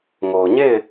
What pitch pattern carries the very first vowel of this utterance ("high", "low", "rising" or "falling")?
low